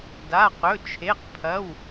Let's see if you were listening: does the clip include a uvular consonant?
yes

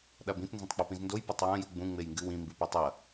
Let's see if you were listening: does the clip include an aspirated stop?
no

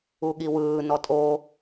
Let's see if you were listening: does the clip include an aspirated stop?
no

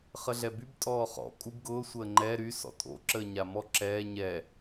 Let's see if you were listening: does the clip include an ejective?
yes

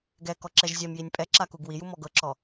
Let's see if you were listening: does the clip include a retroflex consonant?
no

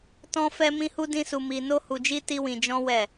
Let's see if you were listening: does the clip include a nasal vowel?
yes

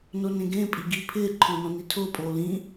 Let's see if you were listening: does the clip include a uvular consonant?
no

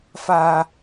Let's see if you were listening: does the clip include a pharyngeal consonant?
no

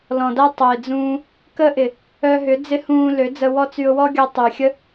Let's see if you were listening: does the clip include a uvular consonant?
no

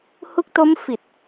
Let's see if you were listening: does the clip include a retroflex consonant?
no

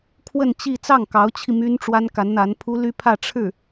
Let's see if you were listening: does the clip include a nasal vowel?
no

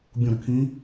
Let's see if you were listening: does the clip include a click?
no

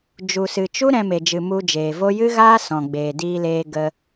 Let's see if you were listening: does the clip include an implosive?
no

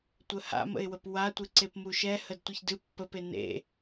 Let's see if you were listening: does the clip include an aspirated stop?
no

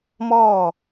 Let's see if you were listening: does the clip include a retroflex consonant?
no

